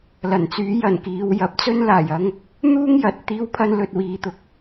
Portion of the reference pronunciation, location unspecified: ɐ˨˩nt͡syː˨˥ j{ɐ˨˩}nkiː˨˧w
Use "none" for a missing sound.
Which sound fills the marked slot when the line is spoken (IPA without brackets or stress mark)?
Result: ɐ˨˩